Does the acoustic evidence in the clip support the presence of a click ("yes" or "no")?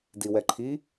yes